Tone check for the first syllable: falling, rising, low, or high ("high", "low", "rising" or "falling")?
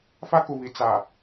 high